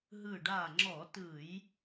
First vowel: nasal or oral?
oral